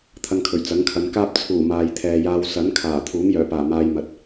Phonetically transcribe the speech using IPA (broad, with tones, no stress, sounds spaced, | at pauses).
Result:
t̪ʰ ɐ˧ ŋ kʰ ɵ˨˩ ɥ t͡s ɐ˨˥ ŋ kʰ ɐ˨˧ n k aː˥ p̚ t͡sʰ uː˨˩ m aː˨ j t̪ʰ ɛː˨ j aː˧ w s ɐ˨˥ n kʰ aː˨˩ t̪ʰ uː˨˥ m j œː˨˩ p aː˨˩ m aː˧ j m ɐ˨ t̚